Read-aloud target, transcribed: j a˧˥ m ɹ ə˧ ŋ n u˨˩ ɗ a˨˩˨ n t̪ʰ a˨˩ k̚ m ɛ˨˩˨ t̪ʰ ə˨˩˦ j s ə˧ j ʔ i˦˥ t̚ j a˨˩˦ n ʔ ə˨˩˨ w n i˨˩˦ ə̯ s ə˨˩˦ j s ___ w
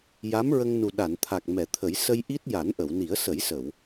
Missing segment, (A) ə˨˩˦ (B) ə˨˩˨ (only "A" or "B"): B